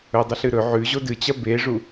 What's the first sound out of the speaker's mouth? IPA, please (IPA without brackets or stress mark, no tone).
ɵ